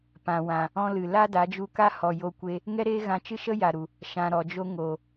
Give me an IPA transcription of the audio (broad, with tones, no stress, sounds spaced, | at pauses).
p ã˨ w ã˨ | ɔ̃˧ l ɨ˨ l a˦ d a˨˦ d͡ʒ u˧ k a˦ h ɔ˨ j o˧ kʷ e˧ | ŋ ɛ˦ ɾ eː˦ ɣ ã˧ t͡ʃ ɨ˦ ʃ ə˦ j a˨ ɾ u˨ | ʃ ã˨ ɾ ɔ˨ d͡ʒ o˧ ŋ o˨